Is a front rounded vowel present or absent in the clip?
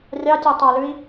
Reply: absent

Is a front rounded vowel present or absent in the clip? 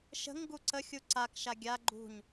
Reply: absent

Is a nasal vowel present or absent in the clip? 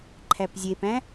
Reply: present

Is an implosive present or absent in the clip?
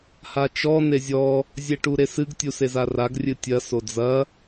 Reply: absent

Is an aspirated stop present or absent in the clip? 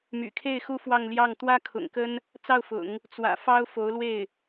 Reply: present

